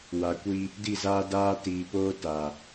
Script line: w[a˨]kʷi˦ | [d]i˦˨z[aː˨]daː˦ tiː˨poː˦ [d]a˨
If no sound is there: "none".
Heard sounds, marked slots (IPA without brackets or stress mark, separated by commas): a˨, d, aː˦, t